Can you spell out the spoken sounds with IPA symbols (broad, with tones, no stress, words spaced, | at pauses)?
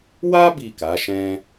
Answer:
wa˦ bi˦˨ka˨˦ʃɛ̃˦